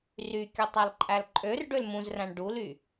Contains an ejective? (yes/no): yes